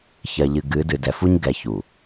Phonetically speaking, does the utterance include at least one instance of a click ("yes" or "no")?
no